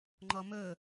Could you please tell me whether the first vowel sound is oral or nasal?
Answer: oral